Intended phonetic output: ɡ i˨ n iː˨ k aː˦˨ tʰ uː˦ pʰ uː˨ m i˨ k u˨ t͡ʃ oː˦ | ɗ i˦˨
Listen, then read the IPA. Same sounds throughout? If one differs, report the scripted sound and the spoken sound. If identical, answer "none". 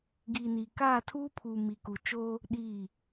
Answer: none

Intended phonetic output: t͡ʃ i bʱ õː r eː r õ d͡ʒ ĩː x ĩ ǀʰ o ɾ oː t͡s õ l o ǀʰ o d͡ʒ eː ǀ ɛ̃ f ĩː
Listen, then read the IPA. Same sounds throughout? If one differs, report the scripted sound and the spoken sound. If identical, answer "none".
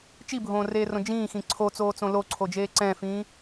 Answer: ɾ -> t͡s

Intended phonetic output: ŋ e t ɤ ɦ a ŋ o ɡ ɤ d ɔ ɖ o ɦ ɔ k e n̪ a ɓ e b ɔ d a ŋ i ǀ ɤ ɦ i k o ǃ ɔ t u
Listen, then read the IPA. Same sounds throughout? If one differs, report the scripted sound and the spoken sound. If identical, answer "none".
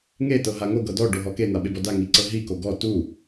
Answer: ǃ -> ɡ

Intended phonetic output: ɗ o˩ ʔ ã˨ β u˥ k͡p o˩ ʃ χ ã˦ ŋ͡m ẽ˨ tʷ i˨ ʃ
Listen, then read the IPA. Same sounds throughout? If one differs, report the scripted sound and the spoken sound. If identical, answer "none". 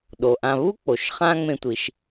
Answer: i˨ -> i˩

